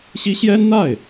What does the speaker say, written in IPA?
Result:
ɕ i˥ ɕ j ɛ˥ n n̪ a˥˩ ɪ̯

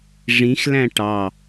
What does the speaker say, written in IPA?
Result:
ʐ ĩ x l æ̃ ʈ ɑ

